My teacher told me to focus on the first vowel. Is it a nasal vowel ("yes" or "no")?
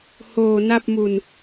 no